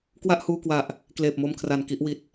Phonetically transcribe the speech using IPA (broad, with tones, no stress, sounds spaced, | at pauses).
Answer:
k w a˥˩ ʔ h uː˧ k w a˨˩ ʔ | k l eː˨˩ p̚ m o˧ m kʰ r a˨˩ n k i˥˩ ʔ w i˨˩ t̚